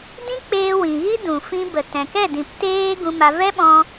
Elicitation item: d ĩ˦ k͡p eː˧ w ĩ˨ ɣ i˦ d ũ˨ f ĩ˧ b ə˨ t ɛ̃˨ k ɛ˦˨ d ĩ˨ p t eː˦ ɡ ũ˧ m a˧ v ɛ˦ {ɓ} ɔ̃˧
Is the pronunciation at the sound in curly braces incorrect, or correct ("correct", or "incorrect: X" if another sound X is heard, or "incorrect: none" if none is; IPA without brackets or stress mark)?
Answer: correct